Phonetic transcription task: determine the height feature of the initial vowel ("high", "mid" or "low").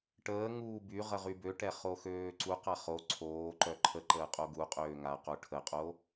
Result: mid